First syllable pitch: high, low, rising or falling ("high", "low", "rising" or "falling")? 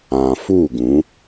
low